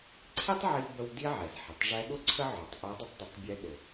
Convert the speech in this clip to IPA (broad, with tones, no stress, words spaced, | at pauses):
ǀʰi˥tˤʕi˧bə˧w di˥ʕɛ˩zħə˩tˤ ʐɛ˧˥ɠʊ˥ǀʰə˥ ʕʊ˩˧tˤʔʊ˧˥ dˤə˥tˤdʊ˩˧tˤbʲɛ˧˥ ɗʊ˩